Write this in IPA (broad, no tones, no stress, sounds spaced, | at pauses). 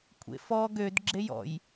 kʷʰ ḛ f ɔ ɡ ø d ɡ͡ǁ e j ɔ̰ j